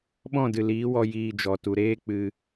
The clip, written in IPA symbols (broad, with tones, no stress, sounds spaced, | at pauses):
ɓ ɔ̃˦˨ d ɨ˨ l iː˨˦ w ɔ˧ j iː˧ d͡ʒ ɔ˨ t u˨ ɾ eː˦ k͡p ɨ˧